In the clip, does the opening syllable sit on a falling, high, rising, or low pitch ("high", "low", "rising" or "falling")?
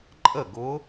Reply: falling